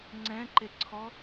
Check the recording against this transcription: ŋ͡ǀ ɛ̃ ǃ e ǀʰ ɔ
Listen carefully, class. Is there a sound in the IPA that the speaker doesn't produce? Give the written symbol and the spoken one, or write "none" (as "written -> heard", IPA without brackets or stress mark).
none